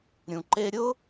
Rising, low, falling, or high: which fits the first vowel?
low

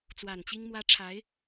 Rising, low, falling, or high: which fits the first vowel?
low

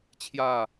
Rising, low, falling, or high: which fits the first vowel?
falling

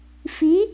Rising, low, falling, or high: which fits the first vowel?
rising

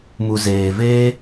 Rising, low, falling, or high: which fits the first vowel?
low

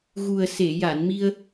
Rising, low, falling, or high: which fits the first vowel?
low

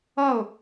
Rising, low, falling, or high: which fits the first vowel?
falling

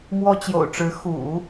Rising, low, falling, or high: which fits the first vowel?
high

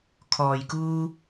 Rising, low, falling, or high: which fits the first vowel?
low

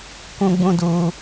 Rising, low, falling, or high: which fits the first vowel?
high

